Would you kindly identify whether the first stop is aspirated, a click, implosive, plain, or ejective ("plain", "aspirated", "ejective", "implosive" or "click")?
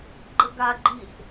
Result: click